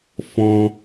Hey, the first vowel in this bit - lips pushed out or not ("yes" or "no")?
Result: yes